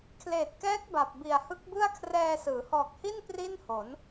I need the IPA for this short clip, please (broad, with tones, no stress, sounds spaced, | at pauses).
kʰ l eː˨˩ t̚ k ɛː˦˥ k̚ b a˨˩ p̚ b i˨˩ a̯ h ɯ˦˥ k̚ b ɯ˥˩ a̯ kʰ r ɛː˧ s ɯː˩˦ h ɔː˨˩ k̚ h i˥˩ n p r i˥˩ n h o˩˦ n